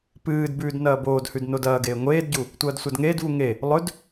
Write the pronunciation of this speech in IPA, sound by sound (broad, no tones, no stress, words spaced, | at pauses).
pɨːdbʉːd nɐːboːdhʉd nodɐːɡeː ŋʷeːdɟu | tʷɐːdsʷadŋeːdvu ŋe | lˠɵd